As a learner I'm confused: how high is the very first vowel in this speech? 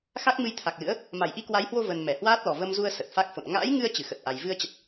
low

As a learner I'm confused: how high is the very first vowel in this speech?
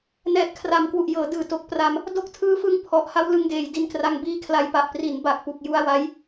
mid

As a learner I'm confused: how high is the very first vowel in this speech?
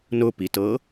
high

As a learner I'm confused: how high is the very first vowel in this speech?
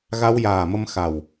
low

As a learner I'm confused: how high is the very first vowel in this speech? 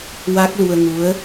low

